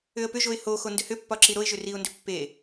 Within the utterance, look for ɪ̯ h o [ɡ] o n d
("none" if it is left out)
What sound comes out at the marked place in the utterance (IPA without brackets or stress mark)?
x